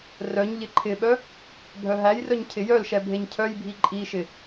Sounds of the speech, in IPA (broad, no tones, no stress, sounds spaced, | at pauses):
r œ ɲ ʎ ɪ ǃʰ ɪ ɓ œ | bʱ œ ɦ æ j r œ ɲ cʰ ɪ j œ l ʃ ɛ bʱ e ɲ cʰ œ j bʱ i ǃʼ i ʃ ɪ